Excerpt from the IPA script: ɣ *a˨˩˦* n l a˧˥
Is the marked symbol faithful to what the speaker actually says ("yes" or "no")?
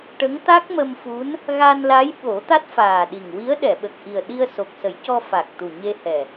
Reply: no